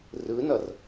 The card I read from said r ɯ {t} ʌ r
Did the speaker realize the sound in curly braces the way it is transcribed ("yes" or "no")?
no